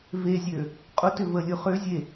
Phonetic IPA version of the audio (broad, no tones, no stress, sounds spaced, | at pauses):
v e zʲ ø | qʼ ʊ t ʏ v ə lʲ ʊ χ ø zʲ e